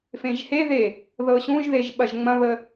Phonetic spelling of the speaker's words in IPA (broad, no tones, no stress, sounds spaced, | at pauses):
f ẽ ʒ h e ð e | ð ɤ ɕ ũ ʒ ð e ʒ ɓ ɐ ʒ ŋ͡m ɐ̃ β ə